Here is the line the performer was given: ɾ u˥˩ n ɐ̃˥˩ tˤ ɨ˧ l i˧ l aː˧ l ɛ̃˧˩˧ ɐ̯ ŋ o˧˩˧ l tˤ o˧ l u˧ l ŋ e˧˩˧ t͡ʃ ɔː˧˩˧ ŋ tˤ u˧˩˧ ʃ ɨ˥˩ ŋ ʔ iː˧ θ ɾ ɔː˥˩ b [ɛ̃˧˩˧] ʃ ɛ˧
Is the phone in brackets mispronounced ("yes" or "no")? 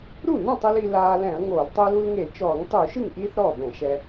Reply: no